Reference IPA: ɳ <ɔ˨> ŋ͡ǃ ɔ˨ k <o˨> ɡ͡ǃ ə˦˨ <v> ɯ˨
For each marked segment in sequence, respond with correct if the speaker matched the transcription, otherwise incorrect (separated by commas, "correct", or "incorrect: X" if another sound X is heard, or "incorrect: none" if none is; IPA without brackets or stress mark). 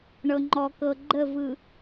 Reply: incorrect: ɤ˨, incorrect: ɤ˨, correct